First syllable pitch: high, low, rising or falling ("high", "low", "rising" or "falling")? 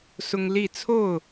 high